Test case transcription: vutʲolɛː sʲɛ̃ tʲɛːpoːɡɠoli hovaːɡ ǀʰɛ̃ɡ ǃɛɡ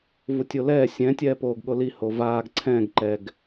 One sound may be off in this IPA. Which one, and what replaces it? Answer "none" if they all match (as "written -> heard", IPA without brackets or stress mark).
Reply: none